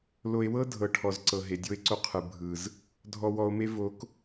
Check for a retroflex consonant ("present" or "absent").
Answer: present